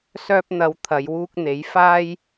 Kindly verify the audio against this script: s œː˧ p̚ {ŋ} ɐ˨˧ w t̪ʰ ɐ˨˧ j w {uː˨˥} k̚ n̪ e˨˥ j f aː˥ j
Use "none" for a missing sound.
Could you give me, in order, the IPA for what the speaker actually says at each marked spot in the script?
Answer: n̪, uː˧

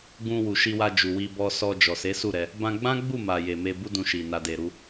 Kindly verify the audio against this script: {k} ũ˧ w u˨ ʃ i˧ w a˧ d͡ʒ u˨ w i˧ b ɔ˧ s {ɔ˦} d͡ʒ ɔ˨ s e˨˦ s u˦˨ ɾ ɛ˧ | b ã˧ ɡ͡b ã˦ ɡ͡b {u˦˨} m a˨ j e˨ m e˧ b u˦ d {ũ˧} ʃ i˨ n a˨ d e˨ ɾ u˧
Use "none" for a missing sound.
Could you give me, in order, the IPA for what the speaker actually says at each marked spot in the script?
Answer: ɡ, ɔ˧, u˦˨, ũ˧

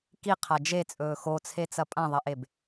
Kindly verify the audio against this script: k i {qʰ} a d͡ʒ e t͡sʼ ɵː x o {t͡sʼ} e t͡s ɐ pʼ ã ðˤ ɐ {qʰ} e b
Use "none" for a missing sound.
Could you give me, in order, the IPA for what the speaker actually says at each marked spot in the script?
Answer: qʰ, t͡sʰ, ʔ

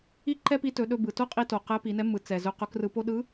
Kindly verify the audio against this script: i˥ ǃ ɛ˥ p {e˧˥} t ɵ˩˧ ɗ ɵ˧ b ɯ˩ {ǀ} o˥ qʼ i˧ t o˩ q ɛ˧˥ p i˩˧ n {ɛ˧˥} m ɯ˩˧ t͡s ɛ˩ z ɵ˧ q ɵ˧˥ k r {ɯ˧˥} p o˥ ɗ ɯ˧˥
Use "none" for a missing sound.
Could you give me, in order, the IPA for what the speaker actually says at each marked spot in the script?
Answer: i˧˥, t, ɛ˧˥, ɯ˧

